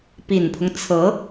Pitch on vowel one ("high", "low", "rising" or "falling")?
low